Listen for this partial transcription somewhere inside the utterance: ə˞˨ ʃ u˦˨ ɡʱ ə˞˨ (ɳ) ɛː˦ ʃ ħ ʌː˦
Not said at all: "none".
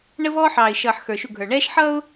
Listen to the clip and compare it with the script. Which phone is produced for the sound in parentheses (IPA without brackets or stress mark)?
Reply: ɳ